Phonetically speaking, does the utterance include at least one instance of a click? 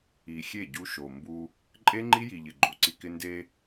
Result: yes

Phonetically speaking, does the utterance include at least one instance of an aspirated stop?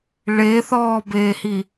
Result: no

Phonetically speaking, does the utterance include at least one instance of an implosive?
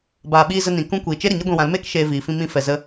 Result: yes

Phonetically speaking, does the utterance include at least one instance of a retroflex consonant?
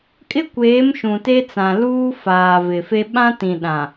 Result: no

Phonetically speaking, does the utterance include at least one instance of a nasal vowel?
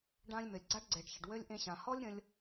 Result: yes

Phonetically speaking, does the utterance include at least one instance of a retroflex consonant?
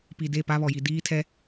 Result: no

